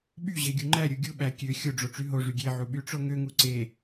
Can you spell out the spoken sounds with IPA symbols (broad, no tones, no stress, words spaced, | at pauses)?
ɓyʑe ɡʲuŋ͡ǃæɾʲu ɡʲuɓæ kʲø xʲoɖ͡ʐo ʈ͡ʂyɦoʐy ɡʲeʕu ɓyʈ͡ʂoŋøŋu ǀe